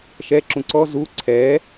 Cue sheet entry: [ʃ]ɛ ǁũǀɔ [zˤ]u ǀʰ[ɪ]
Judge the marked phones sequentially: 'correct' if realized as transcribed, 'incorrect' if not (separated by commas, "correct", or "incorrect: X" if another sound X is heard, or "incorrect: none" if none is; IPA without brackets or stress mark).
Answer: correct, incorrect: z, incorrect: ɛ